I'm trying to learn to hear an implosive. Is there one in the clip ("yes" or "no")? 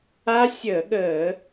yes